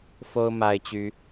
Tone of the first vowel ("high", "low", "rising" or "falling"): high